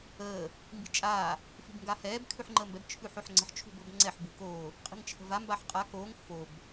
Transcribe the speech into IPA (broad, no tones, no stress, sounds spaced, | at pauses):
əː | m b i̤ t͡ʃʼ aː | f i̤ b ŋ ɡ a h ɛː b kʰ ʉ ħ ŋ͡ǃ əː m b ɛ b t͡ʃʰ ʉː ħ o ħ ŋ͡ǀ ə̤ ħ t͡ʃʰ ṳ b ɤ b ŋ͡ǀ ɛ ħ b u k oː | qʼ i̤ ŋ t͡ʃʰ ə̤ v a m b a ħ qʼ a k oː ŋ f o b